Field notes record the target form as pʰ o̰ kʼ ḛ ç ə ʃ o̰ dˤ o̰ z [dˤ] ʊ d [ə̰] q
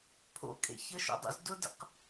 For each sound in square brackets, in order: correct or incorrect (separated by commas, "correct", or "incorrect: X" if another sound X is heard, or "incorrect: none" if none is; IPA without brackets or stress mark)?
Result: incorrect: d, correct